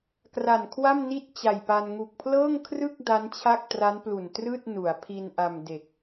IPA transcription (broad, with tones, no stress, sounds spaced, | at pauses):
k r a˨˩ n kʰ w a˥˩ m n i˥˩ t̚ t͡ɕ a˨˩ j p a˧ n ŋ u˨˩ k̚ pʰ l ɤː˥˩ ŋ kʰ r ɯ˥˩ k̚ d a˦˥ n t͡ɕʰ a˥˩ k̚ t r a˦˥ n p l u˨˩ n t r ɯː˥˩ t̚ n u˩˦ a̯ pʰ i˧ n ʔ a˧ m d e˨˩ k̚